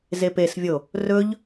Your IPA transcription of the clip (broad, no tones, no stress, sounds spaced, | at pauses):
z e p e s vʲ o | r ɵ ʎ